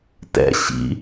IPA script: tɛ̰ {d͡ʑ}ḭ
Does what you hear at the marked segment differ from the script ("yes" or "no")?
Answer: yes